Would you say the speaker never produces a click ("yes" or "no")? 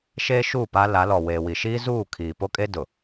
yes